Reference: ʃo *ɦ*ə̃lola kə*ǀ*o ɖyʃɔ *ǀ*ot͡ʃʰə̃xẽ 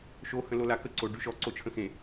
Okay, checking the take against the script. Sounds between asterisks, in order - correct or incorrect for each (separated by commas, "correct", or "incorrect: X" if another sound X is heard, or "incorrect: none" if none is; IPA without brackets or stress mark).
incorrect: h, correct, correct